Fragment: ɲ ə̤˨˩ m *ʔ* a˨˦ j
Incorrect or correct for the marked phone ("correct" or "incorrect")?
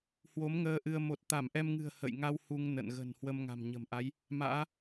correct